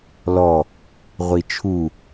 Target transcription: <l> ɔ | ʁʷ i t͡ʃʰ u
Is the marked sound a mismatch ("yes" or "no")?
no